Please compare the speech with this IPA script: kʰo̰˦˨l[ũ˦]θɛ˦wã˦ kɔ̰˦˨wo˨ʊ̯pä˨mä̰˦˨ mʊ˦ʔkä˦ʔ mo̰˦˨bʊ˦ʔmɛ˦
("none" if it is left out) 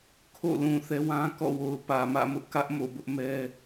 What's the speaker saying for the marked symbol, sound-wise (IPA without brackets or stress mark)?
ũ˨